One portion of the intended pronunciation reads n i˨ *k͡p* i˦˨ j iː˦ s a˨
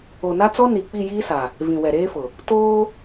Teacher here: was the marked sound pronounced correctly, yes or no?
yes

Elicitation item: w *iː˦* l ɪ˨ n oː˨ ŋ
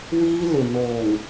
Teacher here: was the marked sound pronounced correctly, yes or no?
yes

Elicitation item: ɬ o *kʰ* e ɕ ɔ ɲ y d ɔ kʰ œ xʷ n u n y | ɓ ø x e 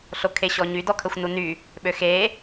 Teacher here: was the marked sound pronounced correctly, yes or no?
yes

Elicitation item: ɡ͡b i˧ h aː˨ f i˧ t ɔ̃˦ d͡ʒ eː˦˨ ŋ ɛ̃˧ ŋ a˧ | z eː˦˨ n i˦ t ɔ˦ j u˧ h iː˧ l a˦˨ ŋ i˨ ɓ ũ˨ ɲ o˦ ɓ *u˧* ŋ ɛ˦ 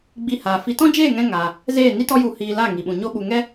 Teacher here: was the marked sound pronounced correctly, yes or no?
yes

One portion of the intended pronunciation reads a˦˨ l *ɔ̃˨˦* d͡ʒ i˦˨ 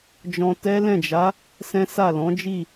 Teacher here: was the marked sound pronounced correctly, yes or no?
yes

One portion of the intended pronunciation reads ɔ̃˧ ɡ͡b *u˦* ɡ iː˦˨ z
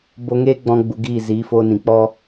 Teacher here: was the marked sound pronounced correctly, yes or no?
no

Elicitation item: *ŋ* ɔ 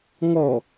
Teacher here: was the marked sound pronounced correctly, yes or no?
yes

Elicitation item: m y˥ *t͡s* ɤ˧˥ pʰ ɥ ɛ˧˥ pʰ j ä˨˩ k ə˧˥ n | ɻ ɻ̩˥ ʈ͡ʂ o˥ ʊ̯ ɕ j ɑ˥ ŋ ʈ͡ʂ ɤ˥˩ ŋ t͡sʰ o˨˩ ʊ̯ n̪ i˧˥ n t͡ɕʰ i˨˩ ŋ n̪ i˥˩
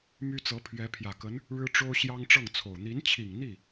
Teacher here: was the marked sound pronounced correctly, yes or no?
yes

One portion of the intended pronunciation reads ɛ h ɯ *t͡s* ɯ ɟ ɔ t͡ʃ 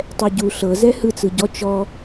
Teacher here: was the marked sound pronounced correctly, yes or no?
yes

